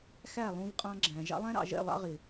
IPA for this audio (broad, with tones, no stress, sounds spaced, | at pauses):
x æ˦˨ lˠ ũ˧ v qʼ ɑ̃˧ ɡ͡ǁ æ̃˨ ʒ ɑ̰˧ lˠ æ̃˦ ɾ ɑ̰˨ ʒ ɛ̰˦˨ lˠ ɑ̰˦ ʁ ɪ˨